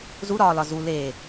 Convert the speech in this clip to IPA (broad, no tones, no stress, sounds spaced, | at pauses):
z u ɾ ɒː l ɒ z u l eː